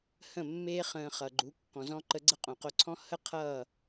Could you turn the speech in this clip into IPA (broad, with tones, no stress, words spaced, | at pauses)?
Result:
hə̃˥˩mːe˥ χə̃ː˧χʌ˩ɡ͡ǃu˩˥ kːɔ̃˩zɔ̃˥ ǃə˧ɡ͡ǀə˥ qʼõ˩qo˧ǀʰɔ̃˥ hə˥ qʰʌː˥˩